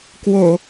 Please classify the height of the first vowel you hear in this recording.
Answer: mid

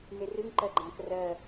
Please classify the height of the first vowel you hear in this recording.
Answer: mid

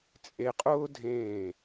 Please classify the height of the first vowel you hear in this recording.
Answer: mid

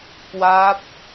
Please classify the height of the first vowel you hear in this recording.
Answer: low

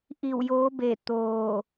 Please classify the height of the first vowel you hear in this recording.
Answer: high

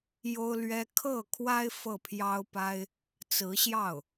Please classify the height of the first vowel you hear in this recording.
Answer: mid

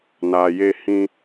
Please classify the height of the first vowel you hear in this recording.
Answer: low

